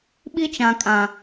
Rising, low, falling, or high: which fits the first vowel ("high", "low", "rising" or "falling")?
high